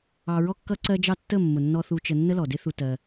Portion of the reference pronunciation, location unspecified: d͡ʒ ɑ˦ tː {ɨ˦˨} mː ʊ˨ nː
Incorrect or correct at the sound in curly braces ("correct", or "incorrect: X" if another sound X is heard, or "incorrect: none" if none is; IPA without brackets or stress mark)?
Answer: incorrect: ə˦˨